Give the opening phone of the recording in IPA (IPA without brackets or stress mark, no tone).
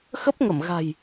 x